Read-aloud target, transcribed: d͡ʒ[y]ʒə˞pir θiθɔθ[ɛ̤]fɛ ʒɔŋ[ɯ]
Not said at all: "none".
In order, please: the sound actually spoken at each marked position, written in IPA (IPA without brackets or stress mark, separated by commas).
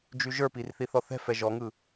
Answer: y, ɛ̤, ɯ